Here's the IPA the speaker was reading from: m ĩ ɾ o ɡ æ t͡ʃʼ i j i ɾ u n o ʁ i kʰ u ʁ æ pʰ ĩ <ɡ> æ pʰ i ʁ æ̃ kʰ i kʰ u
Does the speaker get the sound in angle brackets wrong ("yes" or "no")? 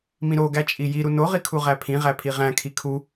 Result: yes